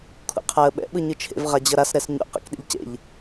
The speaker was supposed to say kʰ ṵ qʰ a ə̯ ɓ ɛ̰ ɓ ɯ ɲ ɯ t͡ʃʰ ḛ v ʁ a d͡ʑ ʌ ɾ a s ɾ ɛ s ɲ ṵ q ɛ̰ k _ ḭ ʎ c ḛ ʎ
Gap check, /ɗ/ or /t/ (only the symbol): ɗ